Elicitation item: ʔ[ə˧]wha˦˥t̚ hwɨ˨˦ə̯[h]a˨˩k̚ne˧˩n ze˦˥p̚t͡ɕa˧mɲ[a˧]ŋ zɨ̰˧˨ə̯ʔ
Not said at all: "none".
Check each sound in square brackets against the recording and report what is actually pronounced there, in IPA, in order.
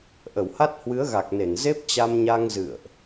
ə˧˩, ɣ, a˧

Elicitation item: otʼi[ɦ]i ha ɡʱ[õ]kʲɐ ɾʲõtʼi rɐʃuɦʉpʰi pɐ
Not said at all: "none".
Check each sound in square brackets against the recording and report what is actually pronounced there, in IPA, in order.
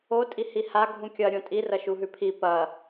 h, ũ

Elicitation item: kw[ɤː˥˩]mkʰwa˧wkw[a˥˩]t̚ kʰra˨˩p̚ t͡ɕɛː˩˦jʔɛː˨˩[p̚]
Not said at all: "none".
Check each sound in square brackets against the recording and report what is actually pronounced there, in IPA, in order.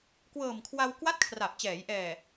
ɤː˨˩, a˥˩, none

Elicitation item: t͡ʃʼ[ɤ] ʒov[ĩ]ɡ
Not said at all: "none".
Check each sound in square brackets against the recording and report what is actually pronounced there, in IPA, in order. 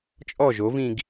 ɔ, ĩ

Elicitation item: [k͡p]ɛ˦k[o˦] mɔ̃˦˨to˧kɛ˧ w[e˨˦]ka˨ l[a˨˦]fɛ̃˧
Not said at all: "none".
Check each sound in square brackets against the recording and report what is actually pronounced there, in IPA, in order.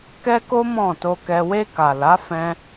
k, o˦, e˧, a˨˦

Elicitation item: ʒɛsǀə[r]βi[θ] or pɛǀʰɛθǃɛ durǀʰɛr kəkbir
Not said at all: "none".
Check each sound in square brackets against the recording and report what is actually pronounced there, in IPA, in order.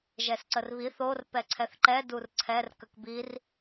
r, θ

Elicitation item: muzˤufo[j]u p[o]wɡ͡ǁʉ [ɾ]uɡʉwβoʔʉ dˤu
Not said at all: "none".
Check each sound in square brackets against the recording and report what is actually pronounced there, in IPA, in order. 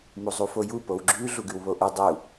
j, o, ɮ

